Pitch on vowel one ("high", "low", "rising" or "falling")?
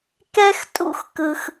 high